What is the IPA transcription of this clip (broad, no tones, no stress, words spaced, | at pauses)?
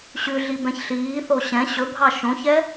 ɕʉɮi bɛ̃çɬiːθo ɕɛ̃ ɕɵbʱɑ ʃõçɛ